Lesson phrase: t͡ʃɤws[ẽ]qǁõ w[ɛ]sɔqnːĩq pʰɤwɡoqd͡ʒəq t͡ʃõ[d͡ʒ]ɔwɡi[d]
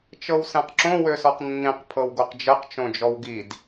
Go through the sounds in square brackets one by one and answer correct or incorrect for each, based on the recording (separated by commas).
incorrect, incorrect, correct, correct